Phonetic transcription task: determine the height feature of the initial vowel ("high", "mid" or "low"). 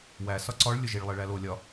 low